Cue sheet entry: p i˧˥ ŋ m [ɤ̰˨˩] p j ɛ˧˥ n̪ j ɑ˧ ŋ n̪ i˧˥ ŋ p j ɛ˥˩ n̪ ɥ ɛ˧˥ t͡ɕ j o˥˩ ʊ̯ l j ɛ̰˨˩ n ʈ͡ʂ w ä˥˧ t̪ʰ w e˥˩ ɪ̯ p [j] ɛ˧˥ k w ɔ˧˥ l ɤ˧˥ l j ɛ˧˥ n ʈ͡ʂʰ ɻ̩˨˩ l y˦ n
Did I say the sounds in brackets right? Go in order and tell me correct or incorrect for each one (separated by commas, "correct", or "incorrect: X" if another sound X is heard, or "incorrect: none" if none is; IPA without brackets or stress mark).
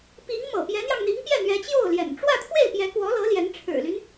correct, correct